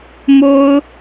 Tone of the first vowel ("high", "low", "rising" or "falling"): high